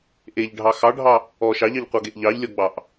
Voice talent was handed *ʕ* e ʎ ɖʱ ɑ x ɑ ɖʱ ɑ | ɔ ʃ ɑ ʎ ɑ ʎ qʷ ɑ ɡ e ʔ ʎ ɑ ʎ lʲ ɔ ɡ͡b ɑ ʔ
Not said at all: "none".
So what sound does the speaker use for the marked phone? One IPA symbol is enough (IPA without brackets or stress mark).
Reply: ʔ